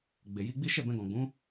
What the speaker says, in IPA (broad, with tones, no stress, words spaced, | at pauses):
ɡ͡be˨ji˧ɡ͡bi˦ ʃɛ˦˨bɛ̃˧ɡɔ̃˨ɡ͡bũ˨˦